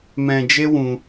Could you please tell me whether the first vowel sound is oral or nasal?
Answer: nasal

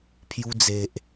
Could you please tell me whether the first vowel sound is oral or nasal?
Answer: oral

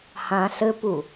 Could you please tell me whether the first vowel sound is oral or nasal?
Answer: nasal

